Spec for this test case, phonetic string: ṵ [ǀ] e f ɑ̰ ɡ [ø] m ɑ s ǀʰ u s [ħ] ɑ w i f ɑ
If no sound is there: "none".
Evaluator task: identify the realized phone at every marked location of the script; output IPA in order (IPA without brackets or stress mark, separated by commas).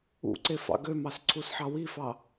ǀ, ø, ħ